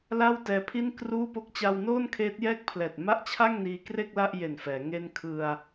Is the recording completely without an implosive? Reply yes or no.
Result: yes